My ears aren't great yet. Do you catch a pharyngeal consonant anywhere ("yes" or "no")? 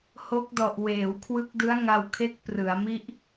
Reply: no